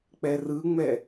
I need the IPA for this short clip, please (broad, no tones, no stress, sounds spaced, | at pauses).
k͡p ɛ r ɯ ŋ͡m ɛ